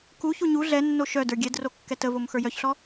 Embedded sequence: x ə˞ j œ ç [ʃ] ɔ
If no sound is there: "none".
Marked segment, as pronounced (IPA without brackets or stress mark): ɬ